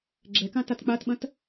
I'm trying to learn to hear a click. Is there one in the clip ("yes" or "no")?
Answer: yes